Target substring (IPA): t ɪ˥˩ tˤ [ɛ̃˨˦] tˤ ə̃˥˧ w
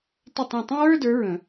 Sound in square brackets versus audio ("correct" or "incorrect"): incorrect